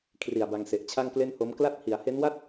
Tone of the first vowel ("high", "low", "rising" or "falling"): low